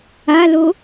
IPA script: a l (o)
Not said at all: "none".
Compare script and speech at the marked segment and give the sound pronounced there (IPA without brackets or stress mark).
o